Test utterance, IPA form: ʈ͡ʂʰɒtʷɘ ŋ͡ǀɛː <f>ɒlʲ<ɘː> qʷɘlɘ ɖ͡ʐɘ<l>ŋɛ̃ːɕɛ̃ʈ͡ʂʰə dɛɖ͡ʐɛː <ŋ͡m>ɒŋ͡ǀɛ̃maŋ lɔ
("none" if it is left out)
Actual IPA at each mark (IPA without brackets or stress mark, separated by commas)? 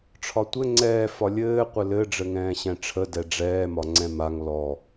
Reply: f, ɘː, none, m